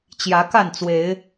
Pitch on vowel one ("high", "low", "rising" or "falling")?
rising